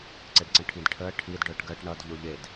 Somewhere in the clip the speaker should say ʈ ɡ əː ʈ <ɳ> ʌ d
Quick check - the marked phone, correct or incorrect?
correct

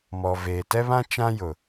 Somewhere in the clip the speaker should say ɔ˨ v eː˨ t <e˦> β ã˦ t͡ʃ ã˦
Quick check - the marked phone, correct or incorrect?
incorrect: ɛ˦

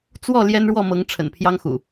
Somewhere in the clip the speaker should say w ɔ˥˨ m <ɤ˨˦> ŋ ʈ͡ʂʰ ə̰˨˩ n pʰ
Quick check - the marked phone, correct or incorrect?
correct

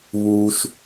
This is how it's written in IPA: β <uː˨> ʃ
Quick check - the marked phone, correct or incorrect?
incorrect: uː˦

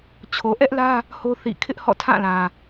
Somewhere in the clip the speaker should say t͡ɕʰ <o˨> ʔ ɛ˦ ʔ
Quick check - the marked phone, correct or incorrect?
correct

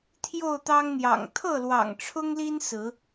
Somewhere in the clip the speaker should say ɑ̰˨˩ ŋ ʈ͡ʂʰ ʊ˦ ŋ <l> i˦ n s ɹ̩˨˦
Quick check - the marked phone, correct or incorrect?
correct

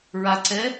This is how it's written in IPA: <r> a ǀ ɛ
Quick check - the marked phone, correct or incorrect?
incorrect: ɹ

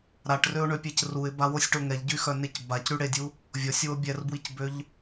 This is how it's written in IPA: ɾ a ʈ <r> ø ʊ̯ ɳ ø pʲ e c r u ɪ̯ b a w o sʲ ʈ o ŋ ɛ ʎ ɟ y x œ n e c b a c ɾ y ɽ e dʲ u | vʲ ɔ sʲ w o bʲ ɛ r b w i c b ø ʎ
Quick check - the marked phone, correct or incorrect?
correct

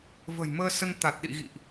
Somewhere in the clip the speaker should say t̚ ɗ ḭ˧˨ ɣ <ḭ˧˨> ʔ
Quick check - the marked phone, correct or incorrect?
correct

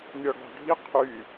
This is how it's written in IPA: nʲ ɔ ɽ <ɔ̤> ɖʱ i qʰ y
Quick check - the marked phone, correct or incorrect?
correct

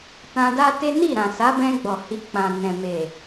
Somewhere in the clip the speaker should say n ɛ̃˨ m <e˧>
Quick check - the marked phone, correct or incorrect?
incorrect: e˨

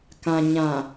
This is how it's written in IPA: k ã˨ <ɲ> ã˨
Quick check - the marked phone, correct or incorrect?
correct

